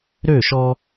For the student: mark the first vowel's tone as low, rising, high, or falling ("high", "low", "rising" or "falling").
falling